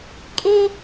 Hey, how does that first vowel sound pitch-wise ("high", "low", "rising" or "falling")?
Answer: high